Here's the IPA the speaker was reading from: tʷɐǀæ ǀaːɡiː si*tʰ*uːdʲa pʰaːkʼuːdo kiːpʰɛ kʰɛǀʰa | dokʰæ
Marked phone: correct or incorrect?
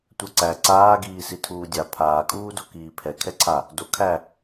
correct